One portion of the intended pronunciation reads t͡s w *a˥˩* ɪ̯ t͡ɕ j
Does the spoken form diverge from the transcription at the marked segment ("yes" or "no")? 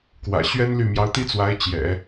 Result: yes